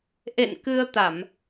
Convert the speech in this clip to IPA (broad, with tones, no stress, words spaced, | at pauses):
ʔḛ˧˨n kɨ˧ə̯t̪a˧˩˨m